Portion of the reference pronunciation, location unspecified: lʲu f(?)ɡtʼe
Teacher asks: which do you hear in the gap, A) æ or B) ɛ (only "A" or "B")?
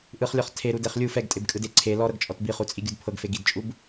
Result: B